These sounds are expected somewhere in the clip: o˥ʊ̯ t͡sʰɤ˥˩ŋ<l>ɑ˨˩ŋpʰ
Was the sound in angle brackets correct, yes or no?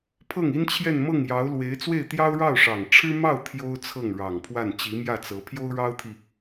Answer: no